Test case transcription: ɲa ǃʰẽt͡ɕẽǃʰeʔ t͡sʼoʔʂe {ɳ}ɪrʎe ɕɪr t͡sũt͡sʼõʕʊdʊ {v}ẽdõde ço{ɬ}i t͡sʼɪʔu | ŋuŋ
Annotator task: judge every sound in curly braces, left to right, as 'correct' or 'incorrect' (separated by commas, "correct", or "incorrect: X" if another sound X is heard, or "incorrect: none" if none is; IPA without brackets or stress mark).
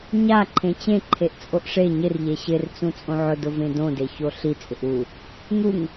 incorrect: ɲ, correct, correct